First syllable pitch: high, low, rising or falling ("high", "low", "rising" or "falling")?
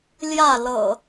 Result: falling